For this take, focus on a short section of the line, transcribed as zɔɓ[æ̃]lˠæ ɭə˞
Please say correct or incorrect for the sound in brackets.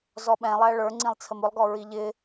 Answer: incorrect